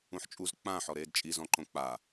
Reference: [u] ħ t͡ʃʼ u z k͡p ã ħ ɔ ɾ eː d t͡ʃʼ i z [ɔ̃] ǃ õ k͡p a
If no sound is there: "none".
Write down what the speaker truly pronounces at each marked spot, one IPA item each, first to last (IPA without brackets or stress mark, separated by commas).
ũ, ɔ̃